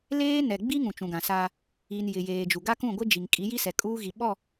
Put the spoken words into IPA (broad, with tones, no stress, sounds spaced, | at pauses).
l eː˦ n ɛ˨ ɡ͡b i˦ ŋ ũ˨ t͡ʃ ũ˨ ɡ ã˨ s aː˦ | i˨ n j ɪ˨ j eː˨ d͡ʒ u˨ ɡ a˦ k ũ˦˨ ɡʷ ɪ˦ d͡ʒ i˨ ŋ kʼ i˨˦ j i˦ s ɛ˨ kʼ uː˦ ɣ i˨ ɓ ɔ˦˨